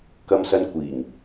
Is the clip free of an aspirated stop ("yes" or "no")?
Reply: yes